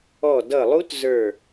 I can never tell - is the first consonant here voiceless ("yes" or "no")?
no